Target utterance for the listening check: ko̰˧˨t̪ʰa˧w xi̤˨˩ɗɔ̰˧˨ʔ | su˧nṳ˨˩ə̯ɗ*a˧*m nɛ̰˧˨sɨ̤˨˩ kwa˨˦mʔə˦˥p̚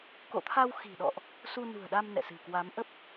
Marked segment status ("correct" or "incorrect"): correct